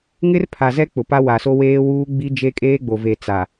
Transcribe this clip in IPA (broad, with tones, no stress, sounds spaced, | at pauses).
ŋ ɪ˦ r pʰ a˨ z ɛ˦ k͡p ʊ˨ p a˦ w a˨ s o˦ w eː˦ w uː˦ ɡ͡b i˦ d͡ʒ e˦ kʼ eː˦ ɡ͡b o˨ v e˨ t͡s a˨